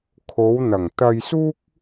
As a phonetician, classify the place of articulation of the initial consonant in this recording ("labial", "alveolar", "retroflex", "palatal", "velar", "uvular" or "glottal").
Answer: velar